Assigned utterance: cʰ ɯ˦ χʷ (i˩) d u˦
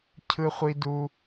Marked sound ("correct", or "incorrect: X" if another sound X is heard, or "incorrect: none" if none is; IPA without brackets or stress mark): incorrect: i˦